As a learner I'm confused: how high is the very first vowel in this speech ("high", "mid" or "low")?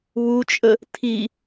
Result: high